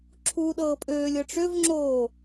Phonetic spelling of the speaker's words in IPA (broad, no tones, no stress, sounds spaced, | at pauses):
ǁʰ uː ɗ ɤː pʼ øː lʲ ɤ ʈ͡ʂ ø v ŋ͡ǁ oː